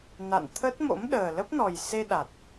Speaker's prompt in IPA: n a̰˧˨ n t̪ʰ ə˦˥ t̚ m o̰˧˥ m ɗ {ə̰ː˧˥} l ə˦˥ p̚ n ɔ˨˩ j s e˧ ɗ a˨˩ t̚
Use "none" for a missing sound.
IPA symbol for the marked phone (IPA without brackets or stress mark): əː˨˩